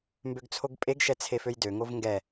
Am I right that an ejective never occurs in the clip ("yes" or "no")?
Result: no